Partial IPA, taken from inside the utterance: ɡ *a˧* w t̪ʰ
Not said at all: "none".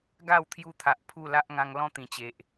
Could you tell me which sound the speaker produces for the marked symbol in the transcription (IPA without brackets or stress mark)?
a˥˧